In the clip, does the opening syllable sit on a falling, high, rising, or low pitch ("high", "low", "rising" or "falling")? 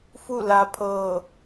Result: falling